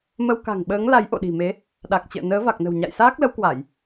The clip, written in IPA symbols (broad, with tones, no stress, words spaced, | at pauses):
mə˧wka̤˨˩ŋ ɓəː˨˦ŋla˨˦j ʔo̰˧˨ɗi̤˨˩me˨˦ | ɗa˨˩k̚t͡ɕə̰ː˧˨ nəː˨˦va˨˩k̚nə̤˨˩w ɲa̰˧˨jsaː˦˥k̚lə˨˦wkwa˧˩˨j